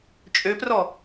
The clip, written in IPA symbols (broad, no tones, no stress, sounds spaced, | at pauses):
t͡ʃʼ ø p r ɔ